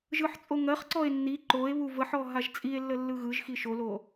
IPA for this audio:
ʒ ɯ ħ t͡sʼ o ŋ ɜ χ ǀ ɔ e̯ nː i ǃ o e̯ β u v ə ħ ɔ ɦ a ʒ t͡sʼ i e̯ lː ə lː ɯ ɣ ɯ ʒ x i ʃ o l o

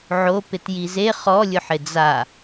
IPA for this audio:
ʕ o p ɪ t j i z e χ ɔ lʲ ʊ ħ ɪ d͡z a

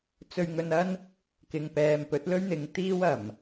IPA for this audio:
t͡s ɵ˧ ɥ ŋ ɵ˧ n ɐ˥ n | k ɪ˨ ŋ p ɛː˨ m p ɵ˨˥ t̚ l ɵ˥ ɥ n̪ ɪ˨˧ ŋ t̪ iː˥ w ɐ˨˩ m

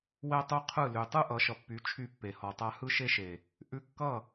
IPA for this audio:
w ɛ˦ tˤ u˦ qʰ ɯ˦˨ l y˨ tˤ ɯ˦ ʔ ʌ˨˦ ʃ ʌ˨ pː y˨˦ t͡ʃʰ y˦˨ pː e˨ h ɔ˨ tˤ a˦ h ɯ˦ ʃ e˦ ʃ e˨ | ʔ ʉ˦ kː ʌ˦˨

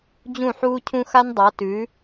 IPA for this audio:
d͡ʑ ũ˦˨ ħ uː˦ cʰ ũ˦ x a˦ n dˤ a˨˦ t ʉ˨˦

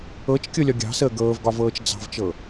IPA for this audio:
ɤ t͡ʃ kʲ ɤ lʲ ɒ ɡʲ ɑ̤ s əː ɡ ɤː v ɡ ɒ v ɤː t͡ʃ d͡z ɑ̤ v t͡ʃ ɤ

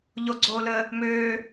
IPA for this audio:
ʎ o ɡ͡ǀ oː l əː | m øː

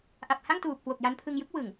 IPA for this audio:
ʔ a˨˩ p̚ h a˥˩ ŋ t uː˨˩ p̚ k w o˨˩ k̚ j a˧ n pʰ ɯ˧ ŋ j ɯ˦˥ k̚ w ɯ˨˩ ŋ

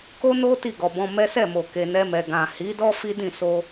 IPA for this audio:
k o˦ n o˦ t i˦˨ ɡ ɔ˨ b ɔ̃˧ m ɛ˦ s ɛ˦˨ m o˨ k e˨ n ɛ˧ m ɛ˨ ɡ ã˨ h i˨˦ d ɔ˦ f i˦ d ĩ˦˨ s o˧

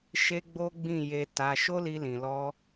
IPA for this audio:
ʃ e˦ ɡ͡b o˦ ɡ͡b ĩ˦˨ j e˧ t a˧ ʃ o˦ l i˧ l ĩ˨ l ɔ˧

